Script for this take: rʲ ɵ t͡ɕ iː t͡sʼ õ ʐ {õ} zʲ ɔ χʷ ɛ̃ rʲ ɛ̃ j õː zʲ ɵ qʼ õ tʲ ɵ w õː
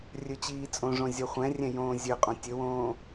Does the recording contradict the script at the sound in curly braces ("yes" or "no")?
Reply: no